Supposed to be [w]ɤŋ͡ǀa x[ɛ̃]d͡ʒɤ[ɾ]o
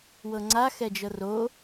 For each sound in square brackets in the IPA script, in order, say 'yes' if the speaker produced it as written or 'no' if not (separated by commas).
yes, no, no